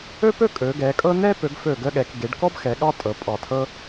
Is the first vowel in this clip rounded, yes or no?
yes